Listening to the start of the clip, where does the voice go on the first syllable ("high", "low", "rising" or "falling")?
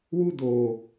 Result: high